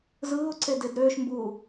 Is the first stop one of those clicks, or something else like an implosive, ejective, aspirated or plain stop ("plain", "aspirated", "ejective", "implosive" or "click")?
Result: click